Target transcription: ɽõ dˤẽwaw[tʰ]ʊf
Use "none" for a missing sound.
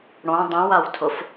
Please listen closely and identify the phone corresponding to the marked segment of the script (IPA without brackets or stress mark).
tʰ